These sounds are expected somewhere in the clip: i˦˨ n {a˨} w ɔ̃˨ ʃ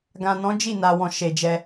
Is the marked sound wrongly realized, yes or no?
no